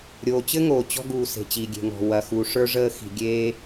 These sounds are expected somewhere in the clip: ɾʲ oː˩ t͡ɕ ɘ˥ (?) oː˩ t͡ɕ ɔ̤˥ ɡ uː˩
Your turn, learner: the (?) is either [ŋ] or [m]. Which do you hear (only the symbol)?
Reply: ŋ